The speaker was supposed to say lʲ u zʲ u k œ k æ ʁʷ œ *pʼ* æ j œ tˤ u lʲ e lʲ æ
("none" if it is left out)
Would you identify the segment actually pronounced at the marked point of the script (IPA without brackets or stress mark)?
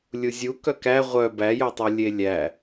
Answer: b